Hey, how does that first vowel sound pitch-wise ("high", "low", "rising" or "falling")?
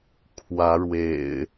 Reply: rising